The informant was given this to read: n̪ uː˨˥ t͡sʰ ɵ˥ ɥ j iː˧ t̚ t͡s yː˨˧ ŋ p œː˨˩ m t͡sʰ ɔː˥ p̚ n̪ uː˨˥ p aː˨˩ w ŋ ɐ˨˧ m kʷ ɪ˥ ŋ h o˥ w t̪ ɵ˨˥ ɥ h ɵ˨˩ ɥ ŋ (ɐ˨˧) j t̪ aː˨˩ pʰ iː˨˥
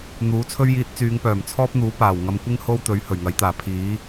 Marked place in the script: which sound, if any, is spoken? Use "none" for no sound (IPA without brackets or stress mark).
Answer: ɐ˨˥